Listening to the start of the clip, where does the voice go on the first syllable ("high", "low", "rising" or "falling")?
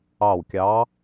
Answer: falling